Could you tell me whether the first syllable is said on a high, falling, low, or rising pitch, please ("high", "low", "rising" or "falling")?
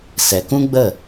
low